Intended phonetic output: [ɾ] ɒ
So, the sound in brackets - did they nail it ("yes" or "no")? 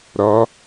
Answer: yes